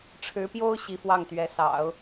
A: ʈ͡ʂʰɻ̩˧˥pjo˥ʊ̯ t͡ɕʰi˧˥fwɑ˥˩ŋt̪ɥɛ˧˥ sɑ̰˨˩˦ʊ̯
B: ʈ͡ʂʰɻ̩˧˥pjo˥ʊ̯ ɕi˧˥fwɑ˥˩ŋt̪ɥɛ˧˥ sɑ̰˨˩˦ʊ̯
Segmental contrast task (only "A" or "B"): B